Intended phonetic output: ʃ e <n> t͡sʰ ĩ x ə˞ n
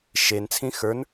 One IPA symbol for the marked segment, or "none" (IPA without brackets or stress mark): n